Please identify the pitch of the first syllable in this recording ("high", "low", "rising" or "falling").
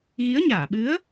rising